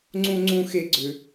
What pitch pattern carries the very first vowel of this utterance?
high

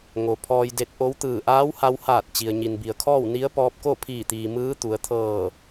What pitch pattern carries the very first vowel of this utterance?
low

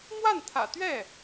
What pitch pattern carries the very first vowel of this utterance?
falling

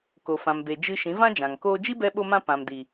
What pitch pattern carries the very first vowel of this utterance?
low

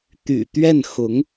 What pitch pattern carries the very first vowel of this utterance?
low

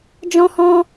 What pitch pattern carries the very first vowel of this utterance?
high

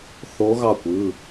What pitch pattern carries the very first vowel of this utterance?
rising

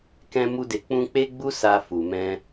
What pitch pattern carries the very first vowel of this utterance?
high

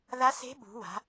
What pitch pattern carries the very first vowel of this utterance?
rising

